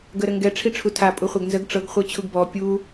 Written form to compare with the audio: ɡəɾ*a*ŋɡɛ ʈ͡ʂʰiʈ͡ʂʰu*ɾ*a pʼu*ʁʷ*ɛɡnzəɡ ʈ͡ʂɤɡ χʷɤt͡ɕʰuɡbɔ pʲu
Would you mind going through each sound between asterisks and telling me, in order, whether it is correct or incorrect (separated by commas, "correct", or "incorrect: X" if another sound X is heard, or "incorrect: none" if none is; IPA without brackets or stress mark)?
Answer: incorrect: ə, incorrect: tʰ, incorrect: χʷ